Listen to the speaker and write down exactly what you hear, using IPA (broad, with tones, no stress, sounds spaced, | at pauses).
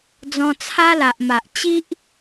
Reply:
d͡z ɔ̃˧ t͡sʰ a˦ l a˨ ʔ m a˨ ʔ t͡ɕ i˦ ʔ